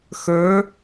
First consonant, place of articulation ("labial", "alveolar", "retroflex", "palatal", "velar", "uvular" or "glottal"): velar